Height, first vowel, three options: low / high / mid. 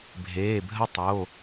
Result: mid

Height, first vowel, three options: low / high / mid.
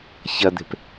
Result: low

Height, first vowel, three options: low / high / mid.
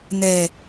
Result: mid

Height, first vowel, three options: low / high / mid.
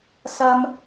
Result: low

